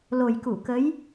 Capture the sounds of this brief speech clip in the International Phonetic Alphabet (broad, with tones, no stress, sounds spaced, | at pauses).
l o˨˩ j k u˧˩ k ə˨˦ j